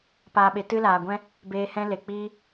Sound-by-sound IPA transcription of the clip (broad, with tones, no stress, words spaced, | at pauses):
paː˨ɓe˨ tɨ˧laː˨ɡʷɛ̃˦ | beː˧hɛ̃˦ le˨k͡piː˦